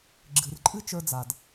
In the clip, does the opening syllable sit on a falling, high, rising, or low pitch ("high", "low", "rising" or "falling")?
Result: low